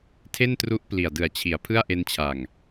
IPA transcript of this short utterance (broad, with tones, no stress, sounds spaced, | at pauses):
tʰ e˥˩ n t r u˦˥ ʔ p l i˨˩ a̯ d ɯ˨˩ a̯ t͡ɕʰ i˩˦ a̯ pʰ ɯ˥˩ a̯ ʔ e˧ n t͡ɕʰ a˨˩ ŋ